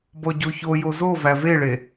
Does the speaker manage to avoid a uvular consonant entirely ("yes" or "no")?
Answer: yes